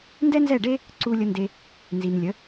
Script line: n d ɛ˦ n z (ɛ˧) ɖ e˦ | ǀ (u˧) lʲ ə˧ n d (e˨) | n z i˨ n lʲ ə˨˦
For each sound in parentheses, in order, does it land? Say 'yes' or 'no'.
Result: no, yes, no

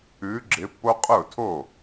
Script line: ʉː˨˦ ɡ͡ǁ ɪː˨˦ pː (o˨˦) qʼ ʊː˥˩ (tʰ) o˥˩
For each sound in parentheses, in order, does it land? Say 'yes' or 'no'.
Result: no, yes

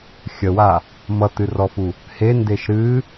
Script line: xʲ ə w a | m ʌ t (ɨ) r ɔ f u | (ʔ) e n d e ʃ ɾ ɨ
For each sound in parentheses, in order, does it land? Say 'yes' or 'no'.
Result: yes, no

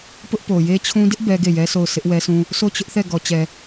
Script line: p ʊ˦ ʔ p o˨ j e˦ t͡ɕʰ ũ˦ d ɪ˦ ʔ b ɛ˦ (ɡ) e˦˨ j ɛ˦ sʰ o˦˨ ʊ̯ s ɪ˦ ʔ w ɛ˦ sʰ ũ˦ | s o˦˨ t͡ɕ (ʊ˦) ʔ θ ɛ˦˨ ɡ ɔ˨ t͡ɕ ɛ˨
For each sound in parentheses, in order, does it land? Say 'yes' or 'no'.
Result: yes, yes

